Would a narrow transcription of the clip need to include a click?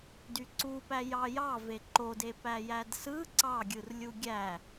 yes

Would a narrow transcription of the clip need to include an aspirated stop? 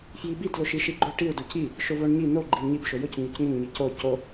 no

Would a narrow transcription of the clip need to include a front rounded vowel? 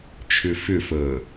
yes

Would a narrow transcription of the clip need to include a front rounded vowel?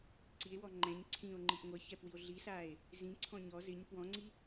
no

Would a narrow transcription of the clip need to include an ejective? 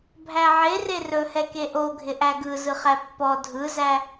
no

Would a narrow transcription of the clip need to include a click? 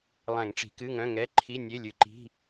yes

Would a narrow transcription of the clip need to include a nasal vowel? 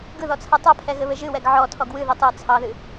no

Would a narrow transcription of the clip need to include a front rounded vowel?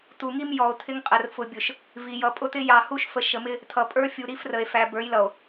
no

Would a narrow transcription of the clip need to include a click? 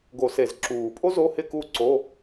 yes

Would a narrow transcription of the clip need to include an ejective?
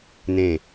no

